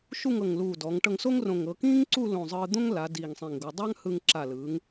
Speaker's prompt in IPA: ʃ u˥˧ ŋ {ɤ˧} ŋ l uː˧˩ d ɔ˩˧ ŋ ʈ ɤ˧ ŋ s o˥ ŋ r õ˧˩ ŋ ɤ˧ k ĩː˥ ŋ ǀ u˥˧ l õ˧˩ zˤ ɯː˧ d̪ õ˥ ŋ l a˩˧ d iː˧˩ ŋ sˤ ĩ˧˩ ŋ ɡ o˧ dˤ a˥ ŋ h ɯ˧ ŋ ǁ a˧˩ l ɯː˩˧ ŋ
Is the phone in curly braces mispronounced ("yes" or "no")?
yes